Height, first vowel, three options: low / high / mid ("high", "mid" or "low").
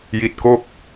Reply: high